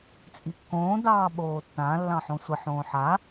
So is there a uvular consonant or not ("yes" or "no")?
no